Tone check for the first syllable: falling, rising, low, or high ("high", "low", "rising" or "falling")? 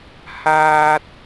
high